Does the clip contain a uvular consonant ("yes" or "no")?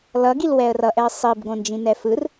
no